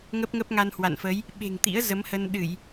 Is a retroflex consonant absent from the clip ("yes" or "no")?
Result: yes